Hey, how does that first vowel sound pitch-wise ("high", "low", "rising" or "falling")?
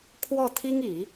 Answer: falling